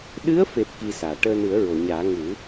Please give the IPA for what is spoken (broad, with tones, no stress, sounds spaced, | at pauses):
ɗ ɨ˧˥ ə̯ f e˨˩ p̚ k i˧ s aː˨˩˨ ʈ əː˧ n ɨ˨˩˦ ə̯ ɹ o˨˩˨ ɲ aː˨˩˦ ŋ u˨˩˦